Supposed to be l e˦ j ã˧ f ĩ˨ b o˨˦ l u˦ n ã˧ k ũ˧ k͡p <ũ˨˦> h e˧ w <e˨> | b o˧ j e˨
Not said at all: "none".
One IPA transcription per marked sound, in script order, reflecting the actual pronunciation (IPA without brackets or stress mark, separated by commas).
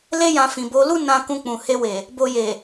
ũ˨, e˨